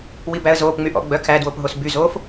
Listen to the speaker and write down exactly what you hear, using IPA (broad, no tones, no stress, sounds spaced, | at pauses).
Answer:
w i b æ ə̯ z oː p ŋ͡m y ʔ ɔ̰ ɡ͡b œ kʰ æ d w o p ɦ o s b y z oː f